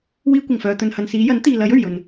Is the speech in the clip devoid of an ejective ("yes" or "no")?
yes